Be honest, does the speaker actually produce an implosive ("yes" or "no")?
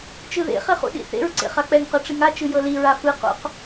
yes